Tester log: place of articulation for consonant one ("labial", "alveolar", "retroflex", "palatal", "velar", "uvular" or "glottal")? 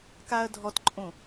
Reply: velar